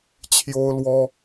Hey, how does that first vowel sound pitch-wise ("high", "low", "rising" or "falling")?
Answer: high